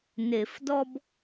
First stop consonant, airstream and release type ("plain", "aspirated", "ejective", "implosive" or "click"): plain